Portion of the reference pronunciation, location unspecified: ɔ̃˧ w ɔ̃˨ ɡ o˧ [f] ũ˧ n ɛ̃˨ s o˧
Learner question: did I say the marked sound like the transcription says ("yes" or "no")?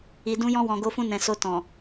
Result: yes